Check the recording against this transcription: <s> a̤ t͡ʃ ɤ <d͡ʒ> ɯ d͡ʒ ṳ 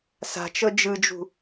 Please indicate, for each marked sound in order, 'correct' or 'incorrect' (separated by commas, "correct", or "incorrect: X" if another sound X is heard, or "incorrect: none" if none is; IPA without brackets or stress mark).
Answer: correct, correct